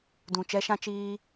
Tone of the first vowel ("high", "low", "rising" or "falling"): low